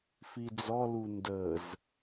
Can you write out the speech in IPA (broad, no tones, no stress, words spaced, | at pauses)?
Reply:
fid͡zɔ lundəz